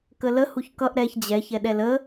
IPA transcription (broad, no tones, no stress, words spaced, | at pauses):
kələ huçkʌʔ ɾɛç d͡ʑɛ çɛɗɛlə